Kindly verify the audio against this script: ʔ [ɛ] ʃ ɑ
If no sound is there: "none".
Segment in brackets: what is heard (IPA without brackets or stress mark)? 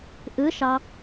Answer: ɨ